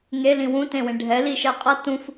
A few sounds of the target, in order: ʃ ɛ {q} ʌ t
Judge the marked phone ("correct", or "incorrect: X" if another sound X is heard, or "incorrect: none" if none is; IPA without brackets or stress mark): incorrect: qʼ